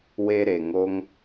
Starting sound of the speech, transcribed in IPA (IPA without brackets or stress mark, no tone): w